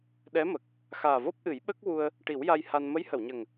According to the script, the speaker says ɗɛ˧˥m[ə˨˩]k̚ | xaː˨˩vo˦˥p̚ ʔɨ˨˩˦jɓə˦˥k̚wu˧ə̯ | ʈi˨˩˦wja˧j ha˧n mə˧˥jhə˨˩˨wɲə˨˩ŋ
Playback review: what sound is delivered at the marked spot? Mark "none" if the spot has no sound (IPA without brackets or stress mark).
ə˨˩